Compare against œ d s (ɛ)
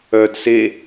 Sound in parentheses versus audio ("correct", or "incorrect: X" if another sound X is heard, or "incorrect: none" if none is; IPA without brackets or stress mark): incorrect: e